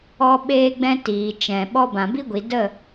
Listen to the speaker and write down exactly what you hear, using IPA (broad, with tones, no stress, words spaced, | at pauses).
ɔ˦ ɓeː˦ɡ͡bɛ̃˦ tiː˨ t͡ʃɛ̃˨ɓɔ˦ bã˨bi˦ɡʷi˨ də˦˨